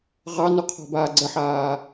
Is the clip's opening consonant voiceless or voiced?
voiced